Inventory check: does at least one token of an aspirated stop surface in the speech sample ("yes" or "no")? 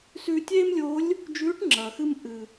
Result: no